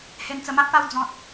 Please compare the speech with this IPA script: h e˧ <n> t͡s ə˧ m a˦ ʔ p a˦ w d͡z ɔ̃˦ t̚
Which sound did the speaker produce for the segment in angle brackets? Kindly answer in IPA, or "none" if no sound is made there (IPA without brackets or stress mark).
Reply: n